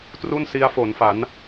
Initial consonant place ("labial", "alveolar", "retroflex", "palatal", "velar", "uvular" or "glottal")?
alveolar